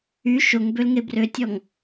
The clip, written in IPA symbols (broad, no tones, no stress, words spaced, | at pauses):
y ʃoŋbølŋe brøtʲɔŋ